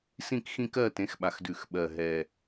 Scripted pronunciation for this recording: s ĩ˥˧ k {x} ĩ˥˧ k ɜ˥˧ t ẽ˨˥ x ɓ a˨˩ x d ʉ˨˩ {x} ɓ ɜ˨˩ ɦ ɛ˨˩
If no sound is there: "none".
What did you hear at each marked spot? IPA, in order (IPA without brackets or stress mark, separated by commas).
x, x